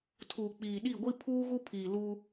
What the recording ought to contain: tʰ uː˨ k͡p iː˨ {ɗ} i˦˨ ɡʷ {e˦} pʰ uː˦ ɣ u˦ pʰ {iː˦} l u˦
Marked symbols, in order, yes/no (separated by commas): yes, no, no